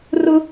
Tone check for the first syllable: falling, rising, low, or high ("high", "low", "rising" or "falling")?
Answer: high